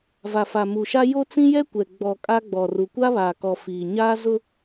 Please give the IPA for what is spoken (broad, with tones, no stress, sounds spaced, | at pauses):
v a˨ f a˨ m u˨ ʃ a˦ j o˦ t͡s ĩ˦ j ɛ˦ kʷ ɛ˨ ɡ͡b ɔ˨ kʼ a˦ ɡ͡b ɔ˨ r u˨ kʷ a˦ β aː˨ k ɔ˨ f iː˨ ɲ aː˦ z ʊ˦